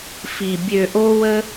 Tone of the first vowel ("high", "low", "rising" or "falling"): low